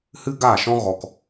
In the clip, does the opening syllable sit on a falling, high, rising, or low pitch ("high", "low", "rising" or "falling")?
high